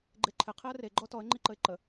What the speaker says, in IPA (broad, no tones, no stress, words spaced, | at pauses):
ɡ͡ǃeǃʰɪ qʰiə̯re ɡ͡ǃɔtɔə̯ ŋ͡ǃiǃəɪ̯ǃə